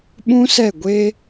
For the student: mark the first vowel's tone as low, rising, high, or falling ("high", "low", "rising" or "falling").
high